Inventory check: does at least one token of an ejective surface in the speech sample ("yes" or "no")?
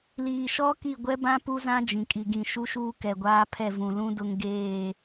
yes